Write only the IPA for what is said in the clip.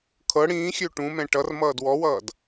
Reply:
kʰ ɤ ɽ ĩː xʲ ø ʈ ũ m ɛ̃ ʈ ʌ r m ʌː d w ɔ w ʌː d

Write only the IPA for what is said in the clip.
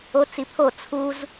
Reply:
o t͡s i pʰ o t͡sʰ u z

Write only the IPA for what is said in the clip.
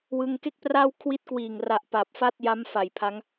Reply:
w ɯ˧ ŋ k e˥˩ k̚ p r aː˥˩ w kʰ w i˦˥ t̚ k w iː˨˩ ŋ r a˨˩ ʔ p a˨˩ p̚ f a˥˩ t̚ j a˦˥ m f a˨˩ j pʰ a˦˥ ŋ

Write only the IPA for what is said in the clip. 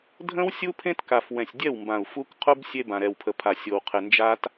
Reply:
dʱ ə̃˦ w sʲ u˦ pʰ ẽ˦ t k a˨ f w ɛ̃˨ sʲ dʲ ɛ˦˨ w m b ã˨ u̯ f u˦ k qʰ u˦ b sʲ e˦ b ã˨ ɾ ɛ˨ w pʰ ə˨ pʰ a˨ sʲ o˨ w qʰ ɪ˨ n d͡ʒ a˦ t

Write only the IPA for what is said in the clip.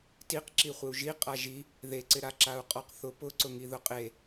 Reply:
t i q ǁ i χʷ ɪ u̯ ʒ i qʼ a ʒ i | ð e ǀ ɪ ɾ a ǁ a u̯ qʼ ɔ q θ ʊ p ʊ ǀ ʊ ŋ i ð ʊ qʼ e

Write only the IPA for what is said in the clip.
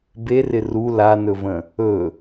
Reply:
b e r ɪ r u l a n ɵ v ə̃ | ɵ

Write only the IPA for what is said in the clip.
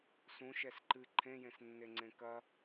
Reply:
s ũ ʃ ɛ s ǃ ɨ ǃʰ ẽ j ẽ s nː e ŋ͡ǀ ẽ k ɐ

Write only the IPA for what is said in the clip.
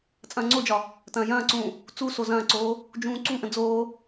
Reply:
t͡sʼ ɐ̃ː ŋ͡ǀ o d͡ʒ ɒ | t ɐ̃ː j ɐ̃ː ǀ ũː | t͡s u s o z ɐ̃ː ǀ oː | d͡ʒ ũː ǀ u ʔ ə̃ d͡z oː

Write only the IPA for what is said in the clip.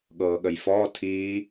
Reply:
ɠ ɤː ɠ ə j f ɔː tʰ iː

